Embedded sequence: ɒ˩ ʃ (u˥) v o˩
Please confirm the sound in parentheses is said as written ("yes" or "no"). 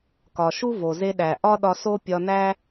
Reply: yes